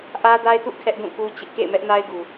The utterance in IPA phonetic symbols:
ʔä˦da˦ɪ̯tṵ˦˨ kʰɛ˦ʔdũ˦˨ku˦t͡ɕɪ˦ʔ kḛ˦˨ɪ̯mɛ˦ʔna˦ɪ̯ɡu˨

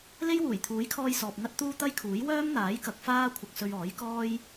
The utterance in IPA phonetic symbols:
le˥jwuː˨˩jt̪ʰuː˨˥jkʰɔː˧j sɔː˨p̚ŋɐ˥t̚t̪uː˥ t̪ɐ˥jkʰuː˨˥j wœː˥m n̪aː˨˥jkɐ˨k̚ faː˥kʷʰɐ˧k̚sɵ˧ɥ ɔː˨˥jkɔː˥j

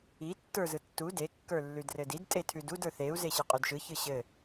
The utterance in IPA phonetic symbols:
i tːə˞zɯtːu de kːə˞lːʉdrɘdid tʼetʰʉdud ə˞θeu̯ zeɕɯqʼʉdʃɯ çɯɕɘ

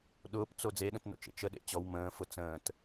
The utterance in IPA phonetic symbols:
ɗʊːpt͡so d͡zeɗə̃tno̰t͡ʃḛ t͡ʃəɗḛ t͡ɕɔw mə̃ːfʊ t͡sə̃ːt

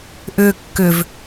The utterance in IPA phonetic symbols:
ʔʏ kːʏv

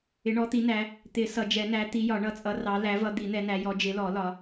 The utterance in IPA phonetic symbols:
ɪ˨˦ɳɔ˨˦t̪i˨˦ næ˨˦ | t̪ɪ˨˩˦ sʌ˨˩˦d͡ʒɛ˨˩˦næ˨˦ t̪i˨˦jɒ˨˩˦ɳʌ˨˩˦t͡sʼʌ˨˦ rɑ˨˦læ˨˦vʌ˨˦ d̪i˨˩˦n̪ɛ˨˦næ˨˦jɔ˨˦ d͡ʒɪ˨˦lɔ˨˩˦ lɒ˨˦

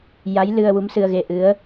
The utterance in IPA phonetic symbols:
ja˧˥jlɨ˧ə̯ wu˧˥msɨ˧ə̯ɣe˧ʔɨ˧˥ə̯

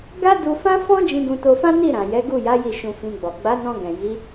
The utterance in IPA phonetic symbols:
ɡa˦ du˧fã˦fɔ̃˦ d͡ʒĩ˧ɡũ˧to˧fã˦ ni˦˨ɾã˨ jɛ˨˦ɡu˦˨ja˨˦ ji˦˨ʃũ˧fĩ˧ɡ͡bɔ˨ ɡ͡ba˨˦nɔ̃˧ ɡɛ̃˨ji˨˦

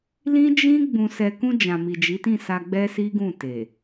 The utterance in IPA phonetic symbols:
lĩ˦ d͡ʒĩ˦ ɡ͡bũ˧sɛ˧ kũ˧ d͡ʒã˨mi˨ d͡ʒi˨˦tĩ˦˨sa˧ ɡ͡bɛ˦si˦ɡũ˦˨ te˨

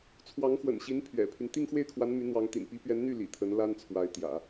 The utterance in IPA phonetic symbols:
t͡sʰwɑ˧˥ŋxwə̰˨˩nɕi˧˥n pʰɥɛ̰˨˩pʰy˦n t̪i˥˧ŋxwe˥˩ɪ̯kʰwa˧˥n my˧˥ n̪wɑ˧˥ŋt̪ḭ˨˩n pi˧˥pɥɛ˧˥nn̪y˥˩ lḭ˨˩t̪ʰə˧˥nla˥n t͡sʰwa˧˥ɪ̯t̪jä̰˨˩˦

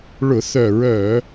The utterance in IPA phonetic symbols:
ɭʊ˧˩˧θœ˧˩˧ɹœ˧˩˧

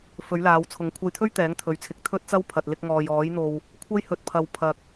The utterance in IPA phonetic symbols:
fɵ˨˥ɥlaː˨˧wt͡sʰʊ˨˥ŋ kʷʰɐ˧jt̪ʰɵ˥ɥ t̪ɛː˨˥ŋt̪ʰɵ˨ɥt͡sʰɪ˨˥k̚ t̪ʰɵ˥t̚t͡sɐ˥w pʰɐ˨t̚lɪ˧k̚ŋɔː˨j ɔː˨˥jn̪o˧w | kʷʰɐ˥jhɵ˧t̚pʰɐ˧w pʰɐ˧k̚

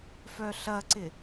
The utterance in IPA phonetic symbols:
fœɬɐǀɪ

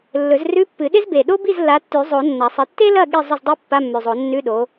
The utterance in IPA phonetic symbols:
lːɵ˨˩˦zrʉ˧˥˧pːɨ˨˩˦ɗe˥z be˨˩ɗo˥ bi˥˨zlːa˨˦tːʉ˨˩˦zˤo˨˩˦ nːɐ˨˩˦sˤɨ˨˦ tːe˥lɐ˥˨ ɠi˥˨zˤɵ˥˨zdˤi˥ pːa˧˥˧mːʉ˨˩zˤo˨˩˦ nːʉ˧˥˧ɗo˨˦

